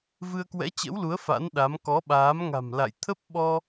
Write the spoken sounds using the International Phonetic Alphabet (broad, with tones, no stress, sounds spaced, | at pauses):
v ɨ˧ ə̯ k w ɛ̰˧˥ t͡ɕ ə̰˧˥ w l u˨˦ ə̯ f a̰˧˥ n ɗ a˨˦ m k ɔ˨˦ ɓ aː˨˦ m ŋ a̤˨˩ m l a̰˧˨ j t̪ʰ ə˦˥ p̚ ɓ ɔ˧